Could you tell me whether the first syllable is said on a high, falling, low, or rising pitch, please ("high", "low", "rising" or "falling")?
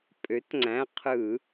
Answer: rising